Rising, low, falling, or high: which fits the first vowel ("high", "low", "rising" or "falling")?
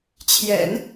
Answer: low